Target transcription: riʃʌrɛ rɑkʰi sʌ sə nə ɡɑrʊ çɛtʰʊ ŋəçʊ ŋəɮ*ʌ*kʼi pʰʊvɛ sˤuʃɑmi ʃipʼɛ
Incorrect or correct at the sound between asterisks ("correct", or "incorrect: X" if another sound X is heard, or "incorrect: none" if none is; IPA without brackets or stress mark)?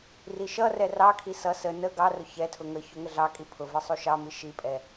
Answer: incorrect: ɑ